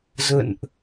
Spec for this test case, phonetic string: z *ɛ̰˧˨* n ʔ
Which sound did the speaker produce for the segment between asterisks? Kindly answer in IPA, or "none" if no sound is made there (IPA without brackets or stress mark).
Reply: ə̰˧˨